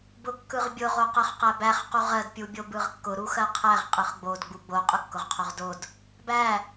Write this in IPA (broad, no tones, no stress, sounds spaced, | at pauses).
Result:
b ʊ kː ɯ ʁ bʲ ʊ ʁ o q ɜ χ q æ b æ χ q u ʁ ɜ d pʲ u bʲ o b ɯ ʁ kː ʊ ɾ u x ɜ qʰ æ ʁ qʼ ɯ χ ɡ͡b o d ɡ͡b u ɡ͡b o qʼ ʊ kː ʊ ʁ qʰ o ʁ d o d | b æ